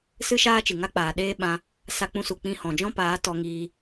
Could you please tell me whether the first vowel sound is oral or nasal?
oral